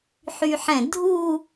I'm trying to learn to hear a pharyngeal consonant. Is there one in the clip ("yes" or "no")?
yes